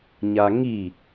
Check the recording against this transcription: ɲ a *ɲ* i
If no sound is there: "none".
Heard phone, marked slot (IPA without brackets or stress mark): ŋ